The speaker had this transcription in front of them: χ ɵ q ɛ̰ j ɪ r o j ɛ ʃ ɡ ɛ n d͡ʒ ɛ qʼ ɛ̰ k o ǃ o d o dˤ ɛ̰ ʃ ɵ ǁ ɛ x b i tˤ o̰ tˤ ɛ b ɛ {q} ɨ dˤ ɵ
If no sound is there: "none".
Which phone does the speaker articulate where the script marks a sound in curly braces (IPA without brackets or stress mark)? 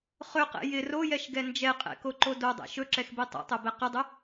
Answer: q